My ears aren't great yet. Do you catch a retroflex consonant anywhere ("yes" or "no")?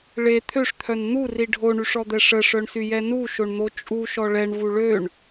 yes